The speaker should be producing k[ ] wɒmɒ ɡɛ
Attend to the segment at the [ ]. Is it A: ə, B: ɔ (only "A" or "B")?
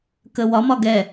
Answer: A